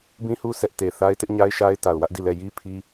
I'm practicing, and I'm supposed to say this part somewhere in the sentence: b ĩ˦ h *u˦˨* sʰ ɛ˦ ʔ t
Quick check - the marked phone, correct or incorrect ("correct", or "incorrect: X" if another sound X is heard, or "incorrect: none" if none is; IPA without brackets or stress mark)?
incorrect: u˦